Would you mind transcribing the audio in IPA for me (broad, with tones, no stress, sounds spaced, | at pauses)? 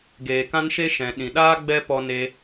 ɡ eː˨ k ã˦ n ʃ e˦ ʃ ɛ̃˨ ɗ ĩ˨ ɗ aː˦ ɡ͡b ɛ˦ p ɔ˧ n e˧